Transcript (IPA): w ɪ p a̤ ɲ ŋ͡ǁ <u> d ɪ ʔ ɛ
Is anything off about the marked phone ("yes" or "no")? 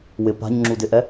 no